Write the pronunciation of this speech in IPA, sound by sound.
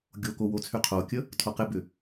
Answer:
ɡʲ o k o w o t͡sʰ y qʰ o kʲ ə | tʰ o q ɪ b ʏ

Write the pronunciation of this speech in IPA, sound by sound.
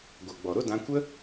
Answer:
ɡʷ a˨ ɡ͡b ɔ˨ ɾ o˦ d ã˧ kʷ ə˦

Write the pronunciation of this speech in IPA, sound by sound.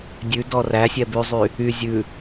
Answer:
dʲ ʉ d ɔ r æ sʲ ɛ b ʉ zˤ y | y zʲ ʉ

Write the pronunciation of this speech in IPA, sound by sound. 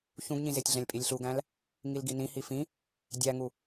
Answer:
ç ũ ɡ ɲ ĩ z e tʲ ɮ æ̃ lʲ pʼ i lʲ ɬ u ɡ æ̃ l | ŋ i l ɡ i n ĩ h i f ĩ | dʲ æ ŋ u

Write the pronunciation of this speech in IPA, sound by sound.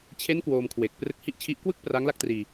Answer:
t͡ɕʰ e˦˥ n k w oː˧ m kʰ w e˨˩ k̚ p r ɯ˦˥ k̚ h i˥˩ ʔ t͡ɕʰ i˦˥ ʔ k w ɯ˥˩ k̚ p r a˦˥ ŋ l a˥˩ k̚ t r iː˧

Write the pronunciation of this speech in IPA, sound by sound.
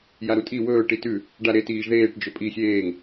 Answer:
j a ɾ u tʼ i w ɵː ʈ i t ʉ | ɖ a ɾ e t iː ʒ ð eː ʈ d͡ʒ ɵ pʼ i xʲ eː ŋ

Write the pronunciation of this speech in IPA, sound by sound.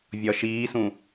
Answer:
vʲ ɒ ʃ iː s ũ

